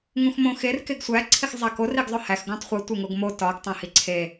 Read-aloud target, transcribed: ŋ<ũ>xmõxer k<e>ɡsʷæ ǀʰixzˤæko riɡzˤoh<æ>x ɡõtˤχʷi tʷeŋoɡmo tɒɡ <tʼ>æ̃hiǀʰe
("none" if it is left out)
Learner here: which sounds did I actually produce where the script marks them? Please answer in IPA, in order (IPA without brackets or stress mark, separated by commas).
ũ, e, æ, tˤ